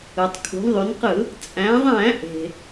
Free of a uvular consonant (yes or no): no